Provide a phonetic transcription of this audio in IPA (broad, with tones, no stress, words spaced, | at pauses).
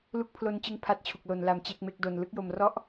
lu˦˥k̚pʰlo˧nt͡ɕɯ˧ŋ pʰa˦˥t̚t͡ɕʰu˨˩k̚lo˩˦n la˧mt͡ɕe˥˩k̚me˦˥k̚do˧n lɯ˦˥k̚jo˧mrɔ˥˩ʔ